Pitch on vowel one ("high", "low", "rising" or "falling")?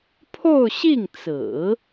falling